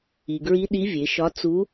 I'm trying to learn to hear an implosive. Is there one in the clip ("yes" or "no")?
yes